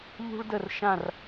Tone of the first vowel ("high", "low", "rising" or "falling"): high